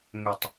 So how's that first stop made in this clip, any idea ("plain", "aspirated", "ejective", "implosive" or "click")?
plain